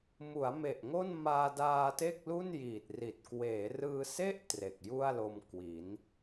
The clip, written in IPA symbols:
m u˩˦ a̯ m e˨˩ ʔ ŋ o˥˩ n m aː˧ d aː˧ t e˥˩ k̚ l u˥˩ n j iː˨˩ t̚ r i˨˩ t̚ k w eː˩˦ r ɯː˧ s e˥˩ ʔ t r e˨˩ k̚ j u˥˩ a̯ l o˧ m k w i˩˦ n

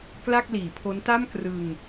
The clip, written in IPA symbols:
k l a˥˩ k̚ l iː˩˦ pʰ o˦˥ n t a˥˩ m k r ɯ˧ ŋ

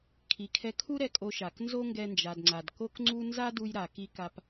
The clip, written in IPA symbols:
kʰ i˩ kʰ ɛ˧ kʰ u˥ ɾ ɛ˧ kʼ o˧ ʃ a˩ k n z o˥ ŋ ɡ ɛ˧ n d͡ʒ a˩ d ŋ͡ǀ a˩ d k o˥ k ŋ͡ǀ u˥ n z a˥ d u˧ j ɾ a˩ k i˧ k a˧ p

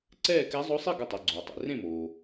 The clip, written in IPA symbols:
ǀ ɛː˥˩ k ɛ˧˥ zˤ o˧˥ sˤ i˥˩ ɡ ə˧˩ tˤ i˩ ɡ͡ǀ oː˩ tˤ ḛ˩ r ẽ˥˩ m oː˩

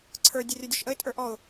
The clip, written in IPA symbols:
ǀʰ ə˞ dʲ ə rʲ ə˞ dʲ ɔ ʃ ʔ ə ɪ̯ tʼ ə˞ ʔ ɔ ʊ̯

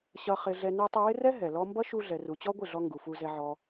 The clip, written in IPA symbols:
ɕ ʌ˧ χ ɪ˧ ɮ ɛ˧ n ɛ˧ tˤ ʌ˧ w ɪ˦ r ɛ˦ ɦ ɛ˨ l ɔ˦ m b ʌ˦ ʃ u˧ ɮ ɛ˨ r u˨ t͡ɕ ɔ˦ ɡʷ ɪ˦˨ ɮ ɔ˧ ŋ ɡ u˨ f u˧ z ɛ˧ ʕ ɔ˧

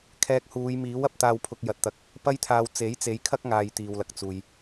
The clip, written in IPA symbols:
kʰ ɛː˧ k̚ h uː˨˧ j m iː˨˥ w ɐ˨˥ p̚ t̪ aː˧ w pʰ ʊ˧ k̚ j ɐ˨ t̚ t̪ ɐ˨˥ k̚ | p ɐ˥ j t̪ʰ aː˧ w t͡s e˨˥ j t͡s e˨˧ j kʰ ɐ˥ k̚ ŋ aː˧ j t̪ iː˨ w l ɐ˨ k̚ t͡s uː˨ j

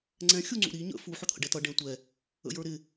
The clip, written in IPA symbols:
ŋ͡ǀ ɛ̃ xʲ u ŋ͡ǀ ṵ ɾ i ɲ ə̰ f u ħ ʊ t̪ʰ ə̰ ɖ ɛ t ʌ ɖ ɛ̃ tʷ ɛ | ə̰ j ə˞ ɾ ɪ

